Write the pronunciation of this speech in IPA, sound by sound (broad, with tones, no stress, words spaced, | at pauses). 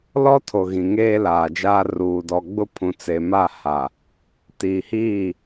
lɔ˦tʰo˨ ɣĩ˨ŋeː˦laː˨d͡ʒaː˦ ruː˨dɔ˨ɡ͡bʊ˦ pʰũ˨t͡se˨ma˦˨ ha˨ | tiː˨hiː˦˨